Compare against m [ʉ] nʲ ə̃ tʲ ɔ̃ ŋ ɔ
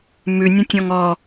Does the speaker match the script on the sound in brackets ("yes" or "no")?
yes